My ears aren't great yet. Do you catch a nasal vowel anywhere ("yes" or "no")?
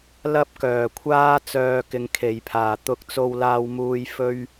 no